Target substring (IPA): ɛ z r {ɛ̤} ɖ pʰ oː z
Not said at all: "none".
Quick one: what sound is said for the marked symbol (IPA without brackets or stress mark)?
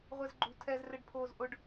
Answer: ɛ